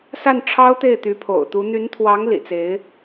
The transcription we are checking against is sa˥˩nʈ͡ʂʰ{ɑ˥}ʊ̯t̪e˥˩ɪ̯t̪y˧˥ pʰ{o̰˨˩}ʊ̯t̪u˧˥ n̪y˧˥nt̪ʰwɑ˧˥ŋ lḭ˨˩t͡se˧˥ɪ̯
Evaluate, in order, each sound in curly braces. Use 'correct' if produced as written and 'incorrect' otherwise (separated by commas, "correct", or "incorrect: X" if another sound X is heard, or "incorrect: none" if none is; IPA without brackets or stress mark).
correct, correct